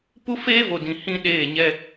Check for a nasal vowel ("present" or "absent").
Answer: present